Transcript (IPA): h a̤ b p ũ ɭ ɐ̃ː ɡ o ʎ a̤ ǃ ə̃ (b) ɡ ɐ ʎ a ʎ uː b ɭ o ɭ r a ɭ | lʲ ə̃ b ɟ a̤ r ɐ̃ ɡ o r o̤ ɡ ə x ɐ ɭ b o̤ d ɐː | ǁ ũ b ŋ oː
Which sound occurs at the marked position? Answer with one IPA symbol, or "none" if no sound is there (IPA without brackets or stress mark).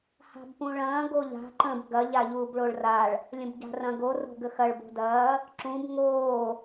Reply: b